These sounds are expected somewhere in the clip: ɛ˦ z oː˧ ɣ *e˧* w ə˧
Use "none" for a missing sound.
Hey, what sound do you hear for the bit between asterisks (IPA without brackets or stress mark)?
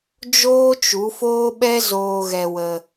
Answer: ɛ˧